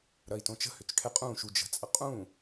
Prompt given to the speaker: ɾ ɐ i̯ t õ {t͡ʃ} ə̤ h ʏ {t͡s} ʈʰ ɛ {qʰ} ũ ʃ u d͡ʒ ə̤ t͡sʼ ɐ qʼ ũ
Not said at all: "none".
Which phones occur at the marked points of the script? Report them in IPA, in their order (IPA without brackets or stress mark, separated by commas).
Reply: t͡ʃ, t͡s, qʼ